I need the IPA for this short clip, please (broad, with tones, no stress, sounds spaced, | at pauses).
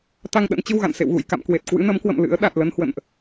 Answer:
t̪ a˧ ŋ ɗ ə̰˧˥ n t͡ɕ ɨ˧ w ɣ a̰˧˨ n s ḛ˧˨ w ɣ ṵ˧˨ j k a̰˧˨ m k w e˨˩ t̚ k w ɨ̰˧˥ n ə˨˦ m k w ə̰˧˨ m l ɨ̰˧˥ ə̯ ɗ a˨˩ t̚ l ə˧ n h w ə̰˧˨ n ʔ